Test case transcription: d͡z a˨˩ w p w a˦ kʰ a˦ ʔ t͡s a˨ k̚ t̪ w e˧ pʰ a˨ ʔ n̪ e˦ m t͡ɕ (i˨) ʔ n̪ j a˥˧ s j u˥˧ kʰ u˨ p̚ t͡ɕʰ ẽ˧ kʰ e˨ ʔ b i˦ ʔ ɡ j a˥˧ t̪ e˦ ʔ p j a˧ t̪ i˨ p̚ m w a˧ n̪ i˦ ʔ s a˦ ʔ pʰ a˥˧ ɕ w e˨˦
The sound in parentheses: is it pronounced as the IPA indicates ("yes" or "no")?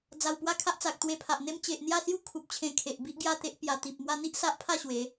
no